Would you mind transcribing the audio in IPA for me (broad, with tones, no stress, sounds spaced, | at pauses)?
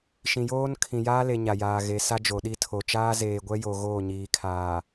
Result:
ʃ ĩ˨ j oː˦ n kʰ ĩ˨ j aː˦ l e˨ ɲ a˨ j aː˨ ɣ e˨˦ s a˦ d͡ʒ o˨ ɗ i˦ tʰ o˨ t͡ʃ aː˦ z eː˨ ɡʷ ɛ˦ j o˨ ɣ oː˦˨ ɲ iː˨ kʰ aː˨